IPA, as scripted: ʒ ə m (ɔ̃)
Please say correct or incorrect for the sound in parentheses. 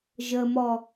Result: incorrect